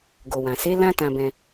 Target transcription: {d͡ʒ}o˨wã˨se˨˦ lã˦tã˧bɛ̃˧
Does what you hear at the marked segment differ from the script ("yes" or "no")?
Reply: yes